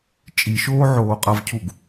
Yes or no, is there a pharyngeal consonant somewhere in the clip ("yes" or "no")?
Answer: yes